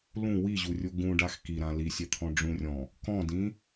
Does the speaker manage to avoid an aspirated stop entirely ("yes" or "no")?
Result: no